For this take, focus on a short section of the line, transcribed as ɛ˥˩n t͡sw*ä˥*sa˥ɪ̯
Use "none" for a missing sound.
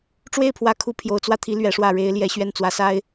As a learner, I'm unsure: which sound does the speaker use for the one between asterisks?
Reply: ä˧˥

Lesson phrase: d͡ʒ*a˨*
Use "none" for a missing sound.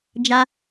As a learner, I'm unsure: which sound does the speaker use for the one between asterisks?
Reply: a˦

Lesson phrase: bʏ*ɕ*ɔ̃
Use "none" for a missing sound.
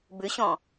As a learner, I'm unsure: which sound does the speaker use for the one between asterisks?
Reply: ɕ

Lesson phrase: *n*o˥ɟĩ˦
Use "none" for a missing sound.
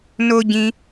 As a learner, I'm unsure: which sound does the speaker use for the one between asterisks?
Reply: n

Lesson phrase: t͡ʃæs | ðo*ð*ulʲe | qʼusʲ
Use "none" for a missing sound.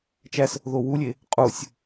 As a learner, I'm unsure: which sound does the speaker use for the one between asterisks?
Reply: w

